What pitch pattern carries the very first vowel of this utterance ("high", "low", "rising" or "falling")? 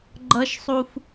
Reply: high